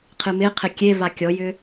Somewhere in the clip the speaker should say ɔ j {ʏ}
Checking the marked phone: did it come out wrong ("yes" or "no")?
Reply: no